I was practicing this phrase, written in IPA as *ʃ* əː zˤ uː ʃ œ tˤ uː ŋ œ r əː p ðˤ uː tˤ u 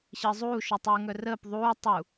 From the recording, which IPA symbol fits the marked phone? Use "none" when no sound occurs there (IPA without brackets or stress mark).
ɕ